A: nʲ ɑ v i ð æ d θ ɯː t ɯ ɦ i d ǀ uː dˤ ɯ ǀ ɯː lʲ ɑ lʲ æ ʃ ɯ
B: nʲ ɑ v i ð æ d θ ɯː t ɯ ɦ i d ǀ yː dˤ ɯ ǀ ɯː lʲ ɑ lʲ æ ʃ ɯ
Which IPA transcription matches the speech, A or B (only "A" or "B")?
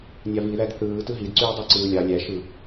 B